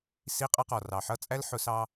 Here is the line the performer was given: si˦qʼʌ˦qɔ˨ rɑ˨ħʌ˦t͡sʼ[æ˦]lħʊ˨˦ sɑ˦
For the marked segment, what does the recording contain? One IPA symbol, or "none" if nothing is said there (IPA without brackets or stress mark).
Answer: æ˦